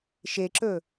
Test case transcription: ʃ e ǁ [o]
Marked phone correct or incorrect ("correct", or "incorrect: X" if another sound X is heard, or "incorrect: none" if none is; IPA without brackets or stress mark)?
incorrect: ɵ